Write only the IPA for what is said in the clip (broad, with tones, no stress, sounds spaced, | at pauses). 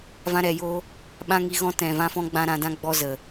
v ã˧ ɾ ɛ˨ j o˧ | ɓ ã˦ ŋ i˧ ɣ ɔ̃˦ t ɛ̃˨ v ã˧ f ɔ̃˧ ɡ͡b ã˦ ɾ ã˧ d ã˦ ɡ͡b ɔ˦ z ə˨